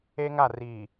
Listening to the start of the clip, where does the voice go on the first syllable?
high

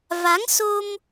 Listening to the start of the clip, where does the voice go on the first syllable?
rising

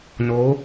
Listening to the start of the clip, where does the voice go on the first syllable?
rising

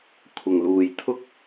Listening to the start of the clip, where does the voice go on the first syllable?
low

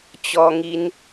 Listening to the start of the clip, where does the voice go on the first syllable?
high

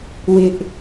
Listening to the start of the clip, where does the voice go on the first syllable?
high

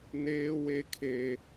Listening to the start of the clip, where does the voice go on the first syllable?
high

